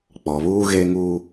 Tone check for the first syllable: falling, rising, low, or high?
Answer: low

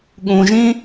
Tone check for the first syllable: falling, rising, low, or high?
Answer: low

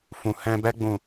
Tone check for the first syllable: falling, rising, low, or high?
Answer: low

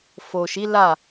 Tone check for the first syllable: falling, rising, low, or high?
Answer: low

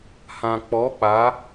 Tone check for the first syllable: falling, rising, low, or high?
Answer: low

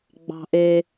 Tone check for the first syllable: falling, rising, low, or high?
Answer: high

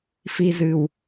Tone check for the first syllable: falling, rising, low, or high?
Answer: low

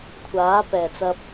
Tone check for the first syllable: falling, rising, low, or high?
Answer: rising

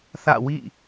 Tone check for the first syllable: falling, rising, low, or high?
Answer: falling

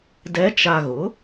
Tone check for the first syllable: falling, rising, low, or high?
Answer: rising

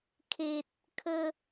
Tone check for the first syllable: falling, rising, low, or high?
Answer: low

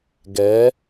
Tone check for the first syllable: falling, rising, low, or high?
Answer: rising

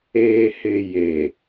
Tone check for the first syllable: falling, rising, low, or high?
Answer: low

